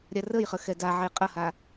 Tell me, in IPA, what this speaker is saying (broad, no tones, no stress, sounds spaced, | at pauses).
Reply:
ɾʲ a r ə j χ ə x ɛ d a ʕ e qʼ ɐ h a